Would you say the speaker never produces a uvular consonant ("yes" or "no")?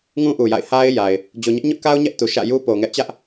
yes